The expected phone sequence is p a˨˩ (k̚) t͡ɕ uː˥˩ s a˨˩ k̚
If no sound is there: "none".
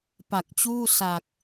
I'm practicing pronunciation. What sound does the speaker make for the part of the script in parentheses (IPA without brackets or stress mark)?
k̚